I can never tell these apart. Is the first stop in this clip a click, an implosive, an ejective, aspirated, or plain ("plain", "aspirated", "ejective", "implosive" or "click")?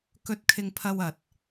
plain